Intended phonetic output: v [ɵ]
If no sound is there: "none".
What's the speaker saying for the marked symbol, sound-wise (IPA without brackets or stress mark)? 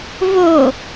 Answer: o